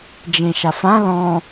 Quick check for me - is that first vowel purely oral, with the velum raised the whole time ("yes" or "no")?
no